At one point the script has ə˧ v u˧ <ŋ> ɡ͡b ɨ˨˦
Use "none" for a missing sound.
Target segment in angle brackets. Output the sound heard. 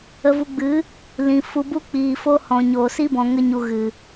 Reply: none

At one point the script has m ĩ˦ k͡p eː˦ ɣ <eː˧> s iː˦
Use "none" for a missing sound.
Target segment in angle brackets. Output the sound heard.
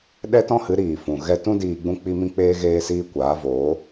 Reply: eː˦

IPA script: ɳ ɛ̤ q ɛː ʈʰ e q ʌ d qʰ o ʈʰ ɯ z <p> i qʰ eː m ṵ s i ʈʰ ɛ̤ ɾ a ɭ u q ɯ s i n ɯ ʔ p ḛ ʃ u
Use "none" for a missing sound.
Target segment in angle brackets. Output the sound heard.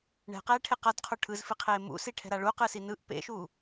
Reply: f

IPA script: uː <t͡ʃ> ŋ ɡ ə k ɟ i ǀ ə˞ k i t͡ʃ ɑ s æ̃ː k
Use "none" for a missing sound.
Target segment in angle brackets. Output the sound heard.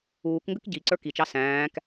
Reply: k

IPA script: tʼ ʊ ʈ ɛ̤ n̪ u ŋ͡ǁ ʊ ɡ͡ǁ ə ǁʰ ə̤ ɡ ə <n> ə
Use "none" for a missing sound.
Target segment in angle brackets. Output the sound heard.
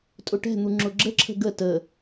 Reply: t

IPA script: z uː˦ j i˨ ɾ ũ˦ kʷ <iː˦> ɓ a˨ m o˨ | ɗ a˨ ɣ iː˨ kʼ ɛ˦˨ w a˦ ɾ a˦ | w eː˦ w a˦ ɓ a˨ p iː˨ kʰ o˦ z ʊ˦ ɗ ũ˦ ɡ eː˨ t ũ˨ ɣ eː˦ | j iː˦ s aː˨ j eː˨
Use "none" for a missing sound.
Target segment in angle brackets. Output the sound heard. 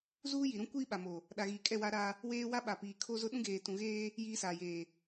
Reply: iː˦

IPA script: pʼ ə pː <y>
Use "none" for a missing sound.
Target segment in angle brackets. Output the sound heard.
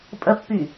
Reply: y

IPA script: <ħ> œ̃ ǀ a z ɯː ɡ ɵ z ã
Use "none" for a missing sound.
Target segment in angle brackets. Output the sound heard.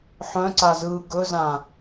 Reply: ħ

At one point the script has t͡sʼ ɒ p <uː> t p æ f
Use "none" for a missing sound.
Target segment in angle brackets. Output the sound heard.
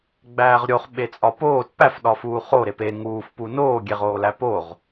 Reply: oː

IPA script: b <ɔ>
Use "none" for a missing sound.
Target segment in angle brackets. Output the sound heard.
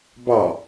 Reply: ɑ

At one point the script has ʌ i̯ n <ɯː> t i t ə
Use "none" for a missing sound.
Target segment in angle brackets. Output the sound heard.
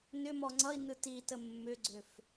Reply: ɯ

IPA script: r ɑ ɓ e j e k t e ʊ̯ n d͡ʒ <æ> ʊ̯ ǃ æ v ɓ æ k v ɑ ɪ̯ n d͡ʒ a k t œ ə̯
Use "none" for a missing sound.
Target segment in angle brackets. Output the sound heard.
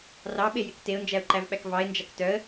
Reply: æ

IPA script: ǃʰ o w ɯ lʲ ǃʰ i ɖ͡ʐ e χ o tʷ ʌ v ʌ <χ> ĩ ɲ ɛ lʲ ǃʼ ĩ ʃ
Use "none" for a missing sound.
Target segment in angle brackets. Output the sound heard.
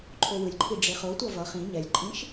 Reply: χ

